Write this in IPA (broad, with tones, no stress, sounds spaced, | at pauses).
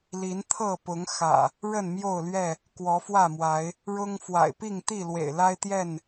l i˨˦ n t̪ʰ ɤ˥˨ p ʊ˨˦ ŋ x ä̰˨˩ | ɻ ə˥˨ n m j o˥˨ ʊ̯ l ɥ ɛ˥˨ | k w ɔ˨˦ f w ä˥˨ m w a˨˦ ɪ̯ | ɻ ʊ˦ ŋ f w a̰˨˩ ɪ̯ p i˥˨ ŋ t̪ i˥˨ l w ḛ˨˩ ɪ̯ l a˦ ɪ̯ t̪ j ɛ˥˨ n